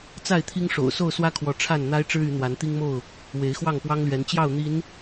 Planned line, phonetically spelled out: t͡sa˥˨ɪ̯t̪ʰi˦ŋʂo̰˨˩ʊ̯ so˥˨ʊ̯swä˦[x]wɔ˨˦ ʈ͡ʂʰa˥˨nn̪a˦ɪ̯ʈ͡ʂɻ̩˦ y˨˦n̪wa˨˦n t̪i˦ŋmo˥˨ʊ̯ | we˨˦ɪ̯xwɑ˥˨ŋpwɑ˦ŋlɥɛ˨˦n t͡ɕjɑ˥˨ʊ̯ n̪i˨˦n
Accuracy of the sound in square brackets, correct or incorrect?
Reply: incorrect